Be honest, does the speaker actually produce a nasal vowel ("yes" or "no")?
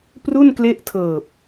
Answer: no